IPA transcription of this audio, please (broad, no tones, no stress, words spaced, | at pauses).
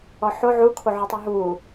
ɔħo ʕukʰoʕotˤy ɦu